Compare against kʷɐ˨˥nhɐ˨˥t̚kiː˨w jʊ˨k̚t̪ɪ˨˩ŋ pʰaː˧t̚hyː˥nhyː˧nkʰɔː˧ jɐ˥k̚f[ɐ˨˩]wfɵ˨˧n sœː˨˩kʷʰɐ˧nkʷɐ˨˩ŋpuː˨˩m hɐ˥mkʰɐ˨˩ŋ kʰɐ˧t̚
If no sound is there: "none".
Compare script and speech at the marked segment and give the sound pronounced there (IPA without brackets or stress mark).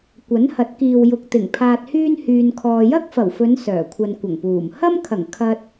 ɐ˨˩